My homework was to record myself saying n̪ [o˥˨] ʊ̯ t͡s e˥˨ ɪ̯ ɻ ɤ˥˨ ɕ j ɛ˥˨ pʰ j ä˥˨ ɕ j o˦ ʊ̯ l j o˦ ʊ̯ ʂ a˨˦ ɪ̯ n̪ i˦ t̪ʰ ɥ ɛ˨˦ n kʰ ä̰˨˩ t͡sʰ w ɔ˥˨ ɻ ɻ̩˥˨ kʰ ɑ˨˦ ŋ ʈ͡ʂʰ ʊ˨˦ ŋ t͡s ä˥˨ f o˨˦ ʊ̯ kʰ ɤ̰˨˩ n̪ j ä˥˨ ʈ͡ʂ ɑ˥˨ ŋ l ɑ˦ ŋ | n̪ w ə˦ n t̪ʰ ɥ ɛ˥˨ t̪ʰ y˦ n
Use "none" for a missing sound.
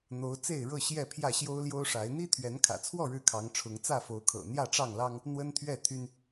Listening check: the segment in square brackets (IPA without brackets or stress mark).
o˨˦